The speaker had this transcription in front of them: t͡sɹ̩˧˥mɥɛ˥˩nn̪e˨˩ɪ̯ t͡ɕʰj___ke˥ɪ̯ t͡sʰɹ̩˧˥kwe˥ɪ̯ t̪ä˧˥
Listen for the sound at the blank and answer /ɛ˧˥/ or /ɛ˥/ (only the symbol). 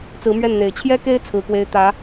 ɛ˥